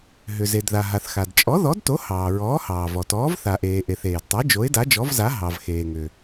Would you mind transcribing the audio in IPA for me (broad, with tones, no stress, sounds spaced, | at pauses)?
ɦ ʏ˩ z e˩ d ð a˩ ɦ a˩ θ x a˩ d t͡ʃʼ ɔ˨˥ ð ɔ˨˥ d t o˨˥ h ɑː˩ ɹ ɔː˨˥ h ɑː˩ v ɔ˩ t ɔː˨˥ v θ a˩ ʔ eː˩ ʔ e˩ θ eː˩ d tˤ e˨˥ d͡ʒ o˨˥ ɪ̯ d a˨˥ d͡ʒ ɔ˨˥ v z a˨˥ ɦ ɑ˩ v x eː˩ ŋ ʏ˩